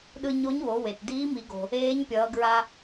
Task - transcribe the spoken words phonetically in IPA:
ɗɯ˧ɲo˧˥ɲwo˩˧ we˩t diː˧˥mi˩˧ɡo̤˩ | eː˧˥ɲpʲʌː˩˧ɡɹa˧

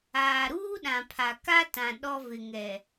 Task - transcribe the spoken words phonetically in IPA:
aː˨ɾuː˦ ɗã˨pʰa˨ ka˦ tã˨ ɗɔ˦vɪ˨ŋɛ˨

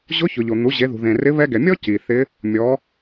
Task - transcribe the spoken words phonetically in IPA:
ʑʊ˧˥çʊ˩ ʎo˩n̪u˩˧ ʑe˩˧ðṳ˩ðẽ˩rɪ˧˥ βɛ˧ɡɛ˩mʲɔ˥ ci˩θɪ˧˥ | mʲɔ˩˧

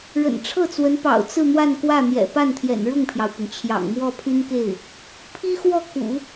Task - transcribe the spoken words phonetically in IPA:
ɻə̰˨˩nʈ͡ʂʰɤ˥˩t͡swə˧˥npɑ̰˨˩ʊ̯ t͡sɹ̩˥˧n̪wa˥˧n kwä˥˩ n̪jɛ̰˨˩pa˥˩n t̪ʰjɛ̰˨˩nɻʊ˥˩ŋpʰjɑ˩ʊ̯pʊ˩ŋ t͡ɕʰjɑ̰˨˩ŋmwɔ˥˩ pʰy˥nke˥˩ɪ̯ | pʰi˥xwɔ˥˩ kṵ˨˩˦

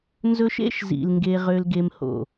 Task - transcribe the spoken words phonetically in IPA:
nzɵ˦ʃ ḛ˦ʃzḭ˨l ŋɡe˦ʁø˦lɡe˦mho̰˦˨

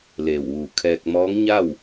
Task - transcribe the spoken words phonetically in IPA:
leː˧˩wʋuː˧˩kʰɛː˧k̚ mɔː˧˥ŋɲa˥˨w

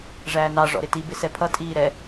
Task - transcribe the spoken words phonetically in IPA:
ʐæːnɑ ʐɔ̰ɾɪti bɪsɛpʰʌ tʼiːɾɛ

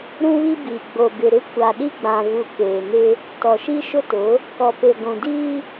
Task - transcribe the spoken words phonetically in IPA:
ɾũ˦βi˦biː˨ ɡ͡bo˨bɪ˨ɾɪ˦ kʷa˨ɗi˦ɡ͡bã˨ vu˨ keː˨nɪ˦ | tɔ˨ʃi˦ʃʊ˦tʊ˨˦ | kɔ˨pe˨ ɡʷũ˨diː˦

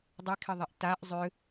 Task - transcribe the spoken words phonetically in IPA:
dˤekʰɪðˤiʔ taʔ zˤʏ

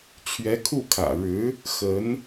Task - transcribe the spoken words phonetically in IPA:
t͡ɕʰɥɛ˧˥kʰu˥˩kʰä̰˨˩ ɻɻ̩˧˥ | xə˧˥n

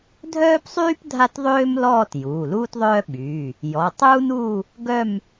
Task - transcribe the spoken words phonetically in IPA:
dʱœː˥psˤyː˥p dʱa˥tðˤøː˥mlɔː˥˧t juː˩˧˩luː˥tðˤœː˥ ɓyː˩˧˩ | jɔ˩˧˩ tˤuː˥nuː˥˧ | ɡœ˥˧m

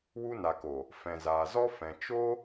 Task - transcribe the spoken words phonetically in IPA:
wu˧na˨ko˨ | fɛ̃˨zaː˨ zɔ˦ fɛ̃˧ t͡ʃo˦

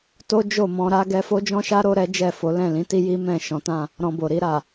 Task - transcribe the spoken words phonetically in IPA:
to˦d͡ʒo˦˨mɔ̃˧ɾa˦ ɡɛ˧fo˦d͡ʒɔ̃˦ʃa˦ ɾo˦ɾɛ˦d͡ʒɛ˦˨fo˨˦ lɛ̃˦˨lĩ˨˦ti˦ji˦ mɛ̃˦˨ ʃɔ̃˨˦tã˦˨ | ɾɔ̃˧bo˨ ɾi˧ɾa˨

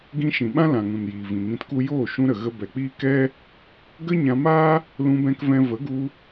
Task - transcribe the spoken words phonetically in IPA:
ɡĩ˧ʃĩ˨ɓã˦ lã˨ŋũ˨njiː˨ vĩ˨ŋĩ˧tku˦ joː˦˨ʃũ˧ɾə˨ ɣə˧bɛ˨k͡piː˦ kɛ˦ | ɡə˦ɲã˧maː˦ | lũ˧bɛ̃˧kvɛ̃˧ və˨˦ɡu˧

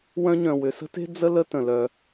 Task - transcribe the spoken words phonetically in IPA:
wœ̃˥ɲœ̃˩ wʏ˩sə̤˥te̤˥ d͡zə˥ lə˥tə̃˩lœ˩

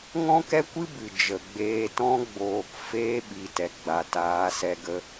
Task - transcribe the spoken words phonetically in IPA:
ŋɔ̃˦kɛ˦kʷɨ˦ bɨ˨d͡ʒə˨ɡ͡beː˧ tɔ̃˧ɡ͡boː˨kfeː˧ ɓi˨tɛ˨ ɡ͡ba˨taː˨˦sɛ˧ ɡə˧

